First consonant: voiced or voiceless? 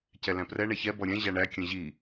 voiceless